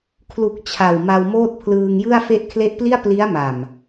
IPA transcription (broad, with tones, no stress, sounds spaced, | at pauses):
kʰ l u˨˩ k̚ t͡ɕʰ a˨˩ w m a˧ w m oː˥˩ t̚ pʰ l ɯː˧ ŋ j ɯ˥˩ a̯ f e˦˥ ʔ kʰ l e˦˥ ʔ p l i˥˩ a̯ p l i˦˥ a̯ m a˨˩ m